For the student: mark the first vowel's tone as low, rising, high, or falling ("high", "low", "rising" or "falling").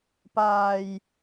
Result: low